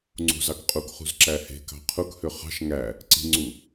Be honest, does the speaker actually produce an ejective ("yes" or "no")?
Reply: yes